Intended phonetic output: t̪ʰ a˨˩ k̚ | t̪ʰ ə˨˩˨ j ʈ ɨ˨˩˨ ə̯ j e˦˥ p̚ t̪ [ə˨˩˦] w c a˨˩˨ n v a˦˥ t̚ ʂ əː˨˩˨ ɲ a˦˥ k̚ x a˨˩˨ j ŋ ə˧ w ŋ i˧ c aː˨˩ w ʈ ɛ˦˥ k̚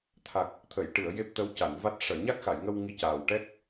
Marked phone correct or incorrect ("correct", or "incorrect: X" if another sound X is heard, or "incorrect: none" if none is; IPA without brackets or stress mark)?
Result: incorrect: ə˧˥